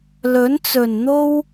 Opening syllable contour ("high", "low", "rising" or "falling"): rising